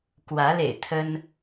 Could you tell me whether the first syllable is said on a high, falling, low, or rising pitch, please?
rising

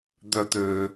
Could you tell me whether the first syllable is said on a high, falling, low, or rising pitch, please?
low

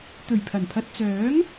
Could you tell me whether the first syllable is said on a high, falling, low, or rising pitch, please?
low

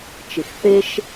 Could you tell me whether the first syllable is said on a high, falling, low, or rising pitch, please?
low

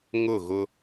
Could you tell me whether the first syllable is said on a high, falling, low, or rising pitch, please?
falling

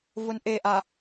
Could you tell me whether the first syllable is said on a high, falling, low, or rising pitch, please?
low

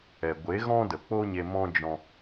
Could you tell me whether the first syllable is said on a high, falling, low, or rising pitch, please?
low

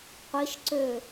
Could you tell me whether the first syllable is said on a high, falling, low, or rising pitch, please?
rising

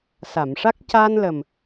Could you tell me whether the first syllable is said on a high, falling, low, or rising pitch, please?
low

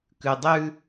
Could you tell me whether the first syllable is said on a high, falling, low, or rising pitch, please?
low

